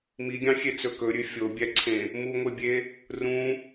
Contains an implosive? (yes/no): no